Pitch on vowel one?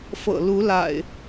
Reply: low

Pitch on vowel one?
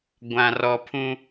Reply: low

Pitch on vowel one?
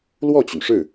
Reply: falling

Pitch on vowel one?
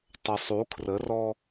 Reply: low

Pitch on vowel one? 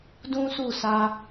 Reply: high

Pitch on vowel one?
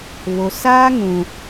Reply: low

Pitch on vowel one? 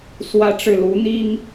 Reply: high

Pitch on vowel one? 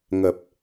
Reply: low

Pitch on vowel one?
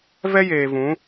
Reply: high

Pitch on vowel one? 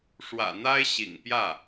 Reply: low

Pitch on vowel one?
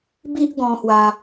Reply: high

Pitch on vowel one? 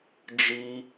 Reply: high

